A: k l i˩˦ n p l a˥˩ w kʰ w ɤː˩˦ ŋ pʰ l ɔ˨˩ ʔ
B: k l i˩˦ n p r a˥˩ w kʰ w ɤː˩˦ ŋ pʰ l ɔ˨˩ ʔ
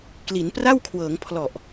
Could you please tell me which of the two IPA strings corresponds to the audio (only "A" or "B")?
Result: B